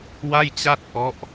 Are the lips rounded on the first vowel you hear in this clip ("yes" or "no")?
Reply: no